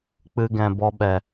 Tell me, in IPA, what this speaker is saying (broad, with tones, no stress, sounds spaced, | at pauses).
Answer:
k͡p ɨ˧ ɡ ɛ̃˨ b ɔ˧ ɓ ɛ˨